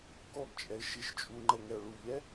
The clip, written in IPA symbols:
k ɔ ɡ t͡ʃʼ ɛ ɪ̯ ʃ i ʃ t͡ʃʼ u ŋ͡ǃ ɛ ŋ ɛ ʊ̯ ɭ u ʎ ɛ

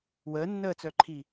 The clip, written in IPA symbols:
w əː nː əː t͡s œ ǃʰ i

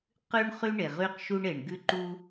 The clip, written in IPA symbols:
q ʉ˥ ɳ χ y˥ ɳ e˩ ʁ y˥ q ʃ u˥ ɳ e˩ ɳ ɡ ʉ˥ ǃ u˥

